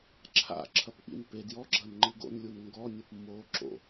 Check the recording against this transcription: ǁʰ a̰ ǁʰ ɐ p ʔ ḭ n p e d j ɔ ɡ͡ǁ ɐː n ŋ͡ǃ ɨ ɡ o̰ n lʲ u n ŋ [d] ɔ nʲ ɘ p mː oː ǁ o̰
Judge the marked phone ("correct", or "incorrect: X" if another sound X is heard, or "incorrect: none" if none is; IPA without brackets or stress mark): incorrect: ɡ